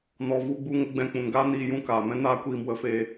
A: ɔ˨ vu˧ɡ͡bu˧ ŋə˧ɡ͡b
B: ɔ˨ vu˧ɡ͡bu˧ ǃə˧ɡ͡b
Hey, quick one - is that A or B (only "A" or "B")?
A